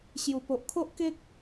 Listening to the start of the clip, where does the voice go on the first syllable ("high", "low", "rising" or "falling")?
low